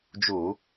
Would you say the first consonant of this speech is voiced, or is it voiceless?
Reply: voiced